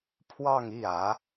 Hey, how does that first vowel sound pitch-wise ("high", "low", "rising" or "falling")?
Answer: falling